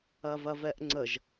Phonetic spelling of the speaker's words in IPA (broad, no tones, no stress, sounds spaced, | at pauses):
ɐ v ɐ v ɛ ʔ ŋ͡ǀ ə ʒ